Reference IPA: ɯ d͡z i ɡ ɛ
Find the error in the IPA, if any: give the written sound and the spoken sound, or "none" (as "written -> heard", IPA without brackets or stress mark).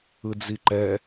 ɡ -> ǃ